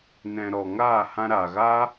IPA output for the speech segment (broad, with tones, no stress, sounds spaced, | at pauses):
n ɛ̃˨ ɾ ɔ˨ ŋ aː˦˨ h ã˧ ɾ aː˨ ɣ a˦